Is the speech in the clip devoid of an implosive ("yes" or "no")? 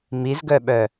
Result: no